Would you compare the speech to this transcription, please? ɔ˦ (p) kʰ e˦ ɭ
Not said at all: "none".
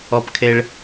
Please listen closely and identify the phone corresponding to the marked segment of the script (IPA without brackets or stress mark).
p